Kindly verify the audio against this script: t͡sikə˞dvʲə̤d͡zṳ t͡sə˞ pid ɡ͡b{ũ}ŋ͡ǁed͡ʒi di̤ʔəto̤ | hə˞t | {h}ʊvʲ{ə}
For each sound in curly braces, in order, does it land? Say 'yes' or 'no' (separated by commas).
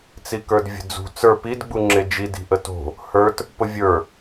no, no, no